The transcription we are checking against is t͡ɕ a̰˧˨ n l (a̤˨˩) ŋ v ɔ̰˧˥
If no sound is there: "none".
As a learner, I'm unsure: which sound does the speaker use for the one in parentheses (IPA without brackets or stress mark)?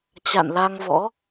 a˧